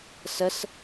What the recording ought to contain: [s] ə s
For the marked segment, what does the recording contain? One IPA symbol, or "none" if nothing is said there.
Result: s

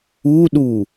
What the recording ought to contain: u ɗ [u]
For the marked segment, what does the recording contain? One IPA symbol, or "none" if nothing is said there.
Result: u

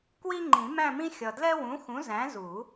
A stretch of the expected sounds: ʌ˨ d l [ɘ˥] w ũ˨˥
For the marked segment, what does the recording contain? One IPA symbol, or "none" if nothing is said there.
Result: ɛ˥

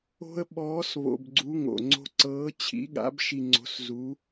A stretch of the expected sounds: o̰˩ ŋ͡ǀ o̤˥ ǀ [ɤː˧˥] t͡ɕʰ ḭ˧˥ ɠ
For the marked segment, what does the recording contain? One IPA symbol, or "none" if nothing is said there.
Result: ɤː˧˥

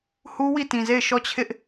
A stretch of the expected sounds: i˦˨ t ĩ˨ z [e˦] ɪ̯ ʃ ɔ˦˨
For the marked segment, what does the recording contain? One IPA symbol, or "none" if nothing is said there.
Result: e˦˨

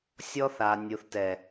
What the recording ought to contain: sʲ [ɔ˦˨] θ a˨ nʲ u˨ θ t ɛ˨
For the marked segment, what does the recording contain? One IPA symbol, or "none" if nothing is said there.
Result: ɔ˦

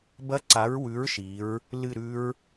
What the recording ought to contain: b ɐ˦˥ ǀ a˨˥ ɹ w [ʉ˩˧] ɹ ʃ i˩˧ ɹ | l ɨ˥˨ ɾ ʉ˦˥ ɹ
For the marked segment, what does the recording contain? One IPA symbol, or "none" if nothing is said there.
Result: ʉ˨˥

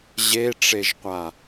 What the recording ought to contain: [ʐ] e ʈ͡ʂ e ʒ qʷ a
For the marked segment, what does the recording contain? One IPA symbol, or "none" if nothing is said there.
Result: ʑ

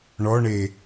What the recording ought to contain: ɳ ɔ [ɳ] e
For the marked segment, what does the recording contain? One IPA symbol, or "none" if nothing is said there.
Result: ɳ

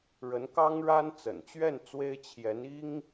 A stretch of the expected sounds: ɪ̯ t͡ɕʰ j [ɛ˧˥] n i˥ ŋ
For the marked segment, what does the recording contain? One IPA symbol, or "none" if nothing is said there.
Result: ɛ˧˥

